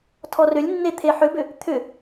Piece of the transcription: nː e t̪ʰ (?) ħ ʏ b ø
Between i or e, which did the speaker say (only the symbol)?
e